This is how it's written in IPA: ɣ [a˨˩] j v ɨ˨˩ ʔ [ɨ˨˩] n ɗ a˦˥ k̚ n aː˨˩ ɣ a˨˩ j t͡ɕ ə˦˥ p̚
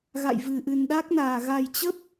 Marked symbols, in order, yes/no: no, yes

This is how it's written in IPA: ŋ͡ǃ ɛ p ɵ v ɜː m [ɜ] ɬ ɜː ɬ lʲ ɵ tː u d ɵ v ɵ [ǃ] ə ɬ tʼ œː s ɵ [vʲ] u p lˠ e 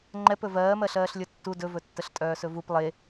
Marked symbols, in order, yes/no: yes, no, no

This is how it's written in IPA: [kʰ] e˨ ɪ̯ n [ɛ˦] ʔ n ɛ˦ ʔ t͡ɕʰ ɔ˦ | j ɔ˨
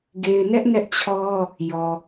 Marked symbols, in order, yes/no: no, yes

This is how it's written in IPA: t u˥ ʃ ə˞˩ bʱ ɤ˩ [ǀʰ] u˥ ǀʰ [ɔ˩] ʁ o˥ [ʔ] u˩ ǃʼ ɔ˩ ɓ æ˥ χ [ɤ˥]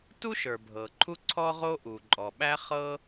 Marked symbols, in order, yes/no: no, no, yes, yes

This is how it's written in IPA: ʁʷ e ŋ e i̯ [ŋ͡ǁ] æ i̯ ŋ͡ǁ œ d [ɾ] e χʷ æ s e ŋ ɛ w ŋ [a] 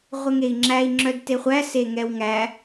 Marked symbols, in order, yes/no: yes, no, no

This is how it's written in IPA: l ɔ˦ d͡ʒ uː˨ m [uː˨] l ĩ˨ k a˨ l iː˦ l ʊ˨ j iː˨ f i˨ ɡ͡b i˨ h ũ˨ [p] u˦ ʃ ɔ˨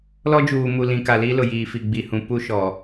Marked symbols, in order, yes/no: no, yes

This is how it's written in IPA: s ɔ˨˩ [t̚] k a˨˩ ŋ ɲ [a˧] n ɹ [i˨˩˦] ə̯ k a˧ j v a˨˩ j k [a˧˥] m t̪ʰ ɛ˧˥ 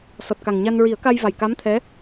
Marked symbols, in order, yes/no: yes, yes, yes, yes

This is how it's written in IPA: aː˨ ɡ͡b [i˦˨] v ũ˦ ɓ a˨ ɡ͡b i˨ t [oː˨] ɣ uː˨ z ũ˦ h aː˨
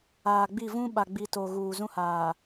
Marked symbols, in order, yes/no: yes, no

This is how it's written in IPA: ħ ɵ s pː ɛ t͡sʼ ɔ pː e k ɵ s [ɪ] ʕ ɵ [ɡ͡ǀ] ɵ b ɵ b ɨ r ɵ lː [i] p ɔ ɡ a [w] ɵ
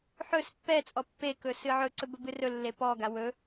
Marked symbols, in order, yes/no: no, no, no, yes

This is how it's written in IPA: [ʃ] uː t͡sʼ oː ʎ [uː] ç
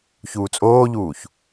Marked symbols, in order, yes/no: no, yes

